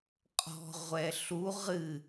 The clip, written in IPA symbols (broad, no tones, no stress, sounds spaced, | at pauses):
qʼ ɔ̤ ʁʷ ɛ ɬ u ʁ ɨ